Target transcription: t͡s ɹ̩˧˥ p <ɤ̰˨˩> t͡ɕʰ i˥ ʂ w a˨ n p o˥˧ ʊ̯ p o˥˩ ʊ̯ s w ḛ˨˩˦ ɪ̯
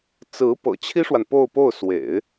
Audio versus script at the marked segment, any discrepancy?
no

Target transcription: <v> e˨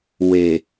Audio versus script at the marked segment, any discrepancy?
yes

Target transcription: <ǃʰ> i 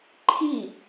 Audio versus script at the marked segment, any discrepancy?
no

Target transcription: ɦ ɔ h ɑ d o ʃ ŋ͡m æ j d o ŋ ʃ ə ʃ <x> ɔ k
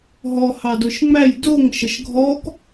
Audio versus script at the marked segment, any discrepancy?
yes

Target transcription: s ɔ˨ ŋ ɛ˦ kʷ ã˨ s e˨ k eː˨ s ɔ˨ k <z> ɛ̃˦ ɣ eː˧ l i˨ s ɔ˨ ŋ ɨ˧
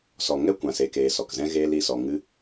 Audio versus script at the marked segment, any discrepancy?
no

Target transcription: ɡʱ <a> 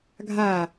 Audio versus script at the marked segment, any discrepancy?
no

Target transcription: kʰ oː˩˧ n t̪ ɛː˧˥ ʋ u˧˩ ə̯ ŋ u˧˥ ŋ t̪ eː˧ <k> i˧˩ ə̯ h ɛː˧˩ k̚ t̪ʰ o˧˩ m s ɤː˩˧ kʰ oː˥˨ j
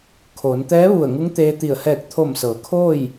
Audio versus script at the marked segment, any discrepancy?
yes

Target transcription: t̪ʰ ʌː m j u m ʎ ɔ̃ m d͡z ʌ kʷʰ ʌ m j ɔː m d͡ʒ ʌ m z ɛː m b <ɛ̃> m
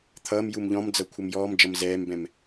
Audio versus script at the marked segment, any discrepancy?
no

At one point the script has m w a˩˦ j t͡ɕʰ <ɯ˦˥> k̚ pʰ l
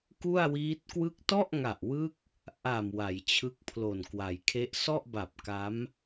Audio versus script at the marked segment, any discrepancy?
no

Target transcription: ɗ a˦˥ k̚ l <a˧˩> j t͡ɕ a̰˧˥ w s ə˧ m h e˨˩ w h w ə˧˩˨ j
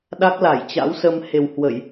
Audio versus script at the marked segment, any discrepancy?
no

